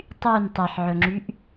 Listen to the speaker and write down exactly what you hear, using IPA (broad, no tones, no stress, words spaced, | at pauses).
tˤyn tˤeħʕɵŋ͡ǁyʔ